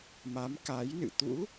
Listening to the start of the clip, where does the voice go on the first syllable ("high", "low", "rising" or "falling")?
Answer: rising